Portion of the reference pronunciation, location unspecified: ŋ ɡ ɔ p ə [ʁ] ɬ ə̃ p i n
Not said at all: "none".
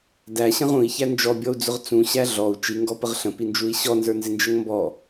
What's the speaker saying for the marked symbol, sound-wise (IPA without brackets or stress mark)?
ʁ